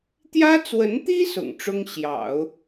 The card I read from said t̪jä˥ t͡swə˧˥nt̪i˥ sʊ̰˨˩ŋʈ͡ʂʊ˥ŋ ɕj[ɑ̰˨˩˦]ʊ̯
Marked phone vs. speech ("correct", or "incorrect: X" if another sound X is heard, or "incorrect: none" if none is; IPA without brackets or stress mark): correct